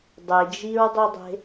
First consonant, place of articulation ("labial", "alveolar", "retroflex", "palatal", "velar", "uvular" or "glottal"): alveolar